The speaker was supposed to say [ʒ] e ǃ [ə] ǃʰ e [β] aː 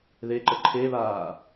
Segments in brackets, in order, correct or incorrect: incorrect: ð, correct, correct

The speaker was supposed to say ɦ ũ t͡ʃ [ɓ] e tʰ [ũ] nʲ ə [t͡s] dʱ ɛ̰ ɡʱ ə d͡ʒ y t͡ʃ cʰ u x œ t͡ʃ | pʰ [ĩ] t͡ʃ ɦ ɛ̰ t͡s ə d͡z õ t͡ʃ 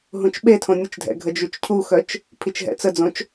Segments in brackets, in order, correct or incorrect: correct, incorrect: õ, incorrect: t͡ʃ, incorrect: i

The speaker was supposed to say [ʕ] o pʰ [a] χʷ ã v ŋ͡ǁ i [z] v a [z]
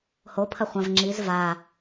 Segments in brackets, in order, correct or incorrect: incorrect: h, incorrect: ɐ, correct, incorrect: none

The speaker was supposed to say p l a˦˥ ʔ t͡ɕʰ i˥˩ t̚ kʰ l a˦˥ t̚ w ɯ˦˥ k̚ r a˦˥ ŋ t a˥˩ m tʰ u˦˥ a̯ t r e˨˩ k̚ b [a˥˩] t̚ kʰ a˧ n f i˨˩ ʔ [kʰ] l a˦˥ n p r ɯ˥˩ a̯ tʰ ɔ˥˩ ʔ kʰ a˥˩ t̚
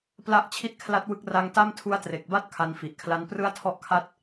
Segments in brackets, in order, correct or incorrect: correct, correct

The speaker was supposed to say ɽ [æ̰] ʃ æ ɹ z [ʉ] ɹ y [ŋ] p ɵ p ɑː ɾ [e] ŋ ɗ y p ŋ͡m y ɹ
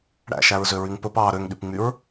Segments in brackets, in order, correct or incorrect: correct, incorrect: ø, correct, incorrect: ø

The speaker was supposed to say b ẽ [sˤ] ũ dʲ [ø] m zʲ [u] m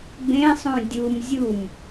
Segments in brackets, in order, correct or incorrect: correct, incorrect: u, correct

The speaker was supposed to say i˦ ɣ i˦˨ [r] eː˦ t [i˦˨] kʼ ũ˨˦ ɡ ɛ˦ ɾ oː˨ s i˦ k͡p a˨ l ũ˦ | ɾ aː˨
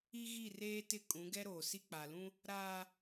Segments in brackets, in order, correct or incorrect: correct, incorrect: ɪ˦˨

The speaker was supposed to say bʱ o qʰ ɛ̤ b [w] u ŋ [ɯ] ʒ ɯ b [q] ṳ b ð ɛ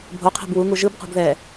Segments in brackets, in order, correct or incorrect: correct, incorrect: u, correct

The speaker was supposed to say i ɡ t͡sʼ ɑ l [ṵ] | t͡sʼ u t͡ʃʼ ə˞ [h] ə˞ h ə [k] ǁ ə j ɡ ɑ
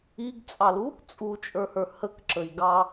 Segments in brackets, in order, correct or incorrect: incorrect: u, correct, correct

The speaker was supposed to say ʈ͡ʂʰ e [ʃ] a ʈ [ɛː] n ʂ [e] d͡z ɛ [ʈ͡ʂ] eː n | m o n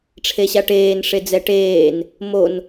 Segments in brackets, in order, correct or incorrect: incorrect: ɕ, incorrect: eː, correct, incorrect: ʈ

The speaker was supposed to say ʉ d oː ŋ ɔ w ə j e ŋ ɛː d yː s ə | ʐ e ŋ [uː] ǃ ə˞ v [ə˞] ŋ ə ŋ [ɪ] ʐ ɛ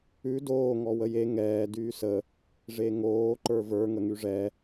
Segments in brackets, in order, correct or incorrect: incorrect: oː, correct, incorrect: y

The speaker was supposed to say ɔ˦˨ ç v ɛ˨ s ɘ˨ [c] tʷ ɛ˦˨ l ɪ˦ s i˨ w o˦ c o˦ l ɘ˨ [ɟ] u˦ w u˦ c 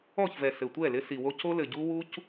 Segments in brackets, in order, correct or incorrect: incorrect: none, correct

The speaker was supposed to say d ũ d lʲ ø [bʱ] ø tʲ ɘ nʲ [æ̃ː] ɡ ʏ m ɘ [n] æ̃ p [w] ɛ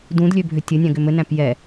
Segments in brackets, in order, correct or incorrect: correct, incorrect: æ̃, correct, incorrect: j

